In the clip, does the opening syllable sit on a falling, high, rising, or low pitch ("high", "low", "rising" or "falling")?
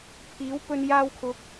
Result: rising